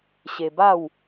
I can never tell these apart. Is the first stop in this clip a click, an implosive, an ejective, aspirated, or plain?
plain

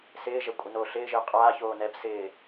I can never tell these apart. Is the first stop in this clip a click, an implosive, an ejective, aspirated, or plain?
ejective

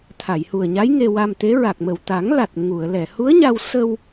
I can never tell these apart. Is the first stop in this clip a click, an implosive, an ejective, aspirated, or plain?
aspirated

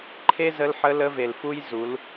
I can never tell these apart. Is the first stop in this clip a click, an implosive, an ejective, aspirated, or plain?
click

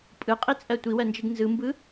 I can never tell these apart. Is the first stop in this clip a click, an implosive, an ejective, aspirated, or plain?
ejective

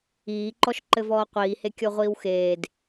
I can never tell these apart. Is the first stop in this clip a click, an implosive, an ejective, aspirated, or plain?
click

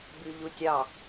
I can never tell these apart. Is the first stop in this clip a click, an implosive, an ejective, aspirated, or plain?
plain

